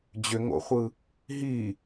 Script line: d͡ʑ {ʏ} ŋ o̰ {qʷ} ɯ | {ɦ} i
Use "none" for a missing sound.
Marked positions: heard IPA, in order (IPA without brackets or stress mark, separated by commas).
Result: ʏ, χʷ, ɦ